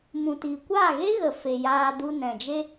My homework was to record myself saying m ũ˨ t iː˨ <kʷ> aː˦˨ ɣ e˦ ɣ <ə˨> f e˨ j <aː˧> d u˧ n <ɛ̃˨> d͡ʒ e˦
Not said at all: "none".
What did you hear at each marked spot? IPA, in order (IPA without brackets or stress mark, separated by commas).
kʷ, ə˨, aː˧, ɛ̃˨